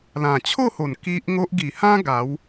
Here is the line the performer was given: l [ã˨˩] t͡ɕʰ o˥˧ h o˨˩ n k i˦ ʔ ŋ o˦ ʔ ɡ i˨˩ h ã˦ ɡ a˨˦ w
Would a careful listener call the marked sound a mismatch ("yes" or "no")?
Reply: no